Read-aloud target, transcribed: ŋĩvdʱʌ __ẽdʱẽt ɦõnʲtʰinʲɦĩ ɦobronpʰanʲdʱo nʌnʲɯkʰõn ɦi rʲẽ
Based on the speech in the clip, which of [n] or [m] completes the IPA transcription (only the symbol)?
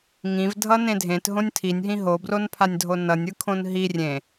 n